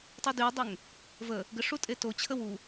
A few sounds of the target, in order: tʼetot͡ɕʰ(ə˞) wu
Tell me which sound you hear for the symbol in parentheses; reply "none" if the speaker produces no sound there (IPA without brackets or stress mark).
ə